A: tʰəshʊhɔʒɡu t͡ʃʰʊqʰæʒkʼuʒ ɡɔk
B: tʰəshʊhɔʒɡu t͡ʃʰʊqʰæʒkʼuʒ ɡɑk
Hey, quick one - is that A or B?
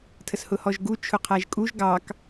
B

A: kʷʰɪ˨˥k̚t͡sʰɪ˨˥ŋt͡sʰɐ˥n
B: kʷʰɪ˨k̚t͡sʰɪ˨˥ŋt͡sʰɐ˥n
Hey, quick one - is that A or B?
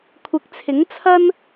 A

